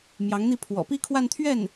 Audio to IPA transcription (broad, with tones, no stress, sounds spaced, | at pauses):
m j ɑ˧˥ ŋ n̪ i˥˩ pʰ w ɔ̰˨˩ p i˥˧ kʰ w a˥˧ n t̪ʰ ɥ ɛ˥˩ n